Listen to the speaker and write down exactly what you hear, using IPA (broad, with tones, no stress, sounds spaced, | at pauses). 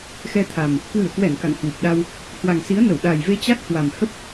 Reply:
x ɛ˧ t̪ʰ a˨˩ m | k w ɨ˧˩ ə̯ k w ɛ˧˩ n k a̰˧˨ ŋ h w u˨˩ p̚ ɗ a˧ w | h w a˨˩ ŋ s i˨˦ ə̯ n ə˧˩ w ɗ a˨˩ j v e˧ t͡ɕ a˦˥ k̚ h w a˨˩ m h ə˦˥ p̚